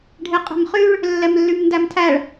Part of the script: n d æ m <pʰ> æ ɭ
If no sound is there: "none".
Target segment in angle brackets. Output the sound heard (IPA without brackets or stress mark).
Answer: tʰ